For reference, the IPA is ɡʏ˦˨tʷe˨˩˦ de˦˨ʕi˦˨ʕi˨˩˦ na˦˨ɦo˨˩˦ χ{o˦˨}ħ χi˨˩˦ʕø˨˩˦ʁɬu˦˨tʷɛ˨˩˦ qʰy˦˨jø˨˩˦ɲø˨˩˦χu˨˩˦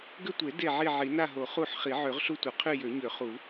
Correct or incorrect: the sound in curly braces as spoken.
incorrect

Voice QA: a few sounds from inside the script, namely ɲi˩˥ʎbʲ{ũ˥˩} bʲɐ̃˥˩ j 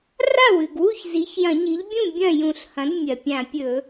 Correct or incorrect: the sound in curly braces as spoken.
correct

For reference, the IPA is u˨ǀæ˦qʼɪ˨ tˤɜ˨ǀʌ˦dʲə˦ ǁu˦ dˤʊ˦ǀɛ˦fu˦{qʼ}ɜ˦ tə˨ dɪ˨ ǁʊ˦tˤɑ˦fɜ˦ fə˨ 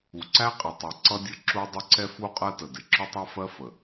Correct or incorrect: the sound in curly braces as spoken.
correct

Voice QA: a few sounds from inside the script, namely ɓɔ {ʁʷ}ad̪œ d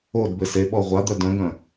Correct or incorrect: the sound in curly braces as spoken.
correct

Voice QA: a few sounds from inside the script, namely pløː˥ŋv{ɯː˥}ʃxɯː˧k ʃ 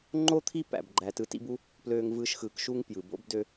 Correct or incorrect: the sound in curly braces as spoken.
correct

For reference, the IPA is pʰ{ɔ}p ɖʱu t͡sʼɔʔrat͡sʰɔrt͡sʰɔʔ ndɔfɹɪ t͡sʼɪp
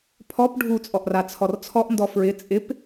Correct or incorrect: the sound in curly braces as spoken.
correct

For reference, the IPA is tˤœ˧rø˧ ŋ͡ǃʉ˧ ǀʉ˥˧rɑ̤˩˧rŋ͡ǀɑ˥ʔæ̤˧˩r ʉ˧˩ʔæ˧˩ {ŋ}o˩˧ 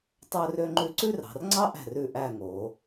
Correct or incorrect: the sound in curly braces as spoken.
correct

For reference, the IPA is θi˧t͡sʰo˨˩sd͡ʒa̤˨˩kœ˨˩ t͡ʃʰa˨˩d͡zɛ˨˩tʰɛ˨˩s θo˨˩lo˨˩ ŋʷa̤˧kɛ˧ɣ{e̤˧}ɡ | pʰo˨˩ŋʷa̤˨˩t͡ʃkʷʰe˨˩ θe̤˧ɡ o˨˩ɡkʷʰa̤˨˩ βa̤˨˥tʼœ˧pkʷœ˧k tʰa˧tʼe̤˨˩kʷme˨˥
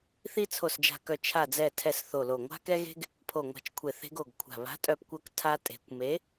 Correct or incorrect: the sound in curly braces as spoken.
correct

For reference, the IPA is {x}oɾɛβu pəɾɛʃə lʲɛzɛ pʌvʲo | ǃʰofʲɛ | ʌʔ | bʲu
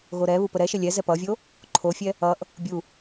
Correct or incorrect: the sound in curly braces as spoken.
incorrect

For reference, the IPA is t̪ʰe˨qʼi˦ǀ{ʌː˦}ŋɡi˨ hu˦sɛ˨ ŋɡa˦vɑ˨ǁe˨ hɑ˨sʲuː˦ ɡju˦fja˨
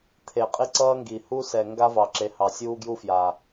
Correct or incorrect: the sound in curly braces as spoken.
correct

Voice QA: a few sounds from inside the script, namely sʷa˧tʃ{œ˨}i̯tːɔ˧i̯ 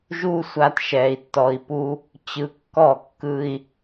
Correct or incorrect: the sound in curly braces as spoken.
incorrect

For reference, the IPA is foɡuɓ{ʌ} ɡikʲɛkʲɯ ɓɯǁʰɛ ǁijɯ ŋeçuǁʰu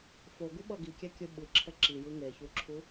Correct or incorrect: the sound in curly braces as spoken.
correct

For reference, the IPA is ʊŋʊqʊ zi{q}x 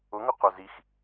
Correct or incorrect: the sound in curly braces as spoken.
incorrect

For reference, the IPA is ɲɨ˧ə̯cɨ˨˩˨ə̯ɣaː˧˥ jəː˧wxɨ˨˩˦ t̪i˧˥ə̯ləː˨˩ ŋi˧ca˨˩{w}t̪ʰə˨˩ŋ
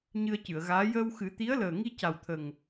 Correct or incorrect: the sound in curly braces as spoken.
correct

